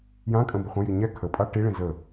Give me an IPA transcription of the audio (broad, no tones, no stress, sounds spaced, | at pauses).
j ã kʼ ə̃ b ə χʷ ə̃ j i ɲ ɛ kʰ ə pʼ a ʈ i ɭ ĩ z ə